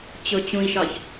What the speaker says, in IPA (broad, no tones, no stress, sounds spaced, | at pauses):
t͡ɕ ʊ t͡ɕ ũ i̯ ʃ ɒ ç